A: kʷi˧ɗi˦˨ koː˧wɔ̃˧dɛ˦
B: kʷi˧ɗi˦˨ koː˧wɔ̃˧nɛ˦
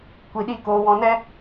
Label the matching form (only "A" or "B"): B